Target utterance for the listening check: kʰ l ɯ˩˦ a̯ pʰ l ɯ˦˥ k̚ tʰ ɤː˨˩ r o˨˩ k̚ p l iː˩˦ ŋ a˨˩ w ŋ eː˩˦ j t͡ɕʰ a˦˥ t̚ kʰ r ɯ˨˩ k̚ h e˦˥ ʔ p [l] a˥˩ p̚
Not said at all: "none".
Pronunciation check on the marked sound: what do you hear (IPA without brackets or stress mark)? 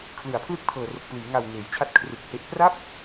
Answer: r